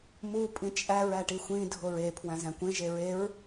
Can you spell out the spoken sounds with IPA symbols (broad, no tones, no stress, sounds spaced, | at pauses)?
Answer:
m u pʼ ĩ t͡ʃʼ æ ɹ æ ʈ i xʷ ĩ dʱ o ɹ e pʰ w æ̃ z æ̃ kʷ ẽ ʒ e ɹ e ɹ